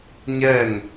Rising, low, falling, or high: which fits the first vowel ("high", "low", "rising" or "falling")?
falling